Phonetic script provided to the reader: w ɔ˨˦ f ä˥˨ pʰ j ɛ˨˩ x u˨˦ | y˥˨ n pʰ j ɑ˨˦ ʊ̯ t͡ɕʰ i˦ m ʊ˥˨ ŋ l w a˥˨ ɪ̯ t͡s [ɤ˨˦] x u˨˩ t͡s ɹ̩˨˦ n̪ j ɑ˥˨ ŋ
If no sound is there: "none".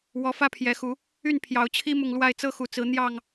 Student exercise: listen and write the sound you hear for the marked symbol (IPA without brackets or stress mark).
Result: ɤ˦